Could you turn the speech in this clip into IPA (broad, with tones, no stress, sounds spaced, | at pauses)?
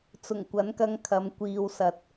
t͡s ʊ˨˩ ŋ kʷ ɐ˨˥ n k ɐ˧ ŋ kʰ ɐ˨˧ m kʷ iː˧ w s ɐ˧ t̚